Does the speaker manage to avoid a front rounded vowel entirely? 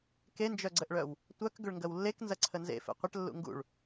no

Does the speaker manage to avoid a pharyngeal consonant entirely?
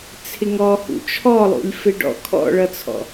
yes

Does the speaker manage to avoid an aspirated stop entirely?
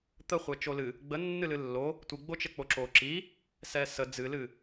yes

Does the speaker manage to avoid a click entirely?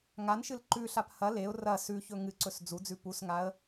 no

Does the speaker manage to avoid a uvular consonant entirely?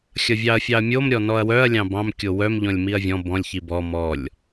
yes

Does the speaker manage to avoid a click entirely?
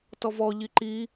no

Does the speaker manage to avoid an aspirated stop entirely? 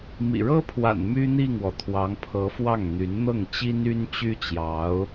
no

